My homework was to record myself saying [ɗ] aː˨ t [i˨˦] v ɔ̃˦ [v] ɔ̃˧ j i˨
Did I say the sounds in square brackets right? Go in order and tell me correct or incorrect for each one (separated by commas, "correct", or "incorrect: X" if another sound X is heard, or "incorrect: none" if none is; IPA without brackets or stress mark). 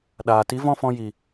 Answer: correct, correct, incorrect: f